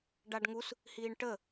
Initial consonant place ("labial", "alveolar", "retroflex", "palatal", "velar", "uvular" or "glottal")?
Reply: retroflex